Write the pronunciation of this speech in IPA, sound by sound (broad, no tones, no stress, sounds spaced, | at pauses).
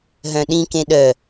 ɦ œ̃ ɗ ĩ k ẽ ɗ œ